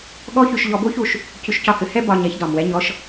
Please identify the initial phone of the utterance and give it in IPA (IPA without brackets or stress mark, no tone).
ɠ